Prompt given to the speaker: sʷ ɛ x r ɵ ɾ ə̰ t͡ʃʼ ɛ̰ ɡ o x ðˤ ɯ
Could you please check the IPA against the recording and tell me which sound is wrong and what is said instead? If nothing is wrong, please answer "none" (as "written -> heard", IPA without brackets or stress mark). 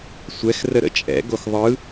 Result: ɵ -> ə